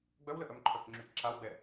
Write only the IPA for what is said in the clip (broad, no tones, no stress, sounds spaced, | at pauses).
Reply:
ɡ͡b œ w l ə ʔ œ m ǃʰ œ k ŋ͡ǁ y k ǁ a w ɡ͡b ɛ